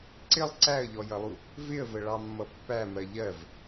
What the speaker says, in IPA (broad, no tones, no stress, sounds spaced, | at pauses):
ǀ ɪ lˠ ǀ æ ə̯ ʎ ɔ j ʌ lˠ u | v ɪ ə̯ v ə ɭ ɑ mː ʌ pː æ m ɜ ʎ ɜ v